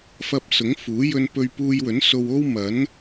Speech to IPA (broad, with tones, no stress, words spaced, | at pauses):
fɐ˧p̚sʊ˨˥ŋfuː˨˥ jɵ˧npɵ˧ɥ puː˧jwɵ˨˥nso˧wo˥w mɐ˨˥n